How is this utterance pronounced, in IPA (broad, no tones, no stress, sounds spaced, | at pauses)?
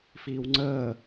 f iː w ŋ͡ǀ əː